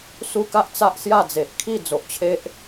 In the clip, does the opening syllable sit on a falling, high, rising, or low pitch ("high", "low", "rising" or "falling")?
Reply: high